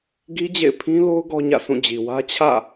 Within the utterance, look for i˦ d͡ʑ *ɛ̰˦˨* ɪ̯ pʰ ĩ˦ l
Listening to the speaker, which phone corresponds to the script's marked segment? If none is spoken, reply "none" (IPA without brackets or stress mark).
ḛ˦˨